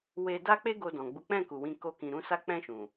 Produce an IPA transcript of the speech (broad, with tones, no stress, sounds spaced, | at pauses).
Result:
w e˧ d a˦ k͡p e˦ ɡ o˧ d ɔ̃˨ ɡ͡b u˨˦ k͡p ɛ̃˦˨ k u˨ w ĩ˧ k o˦ k ĩ˧ ɾ ũ˧ s a˧ k͡p ɛ̃˧ ʃ ũ˨